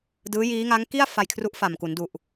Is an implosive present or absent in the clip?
absent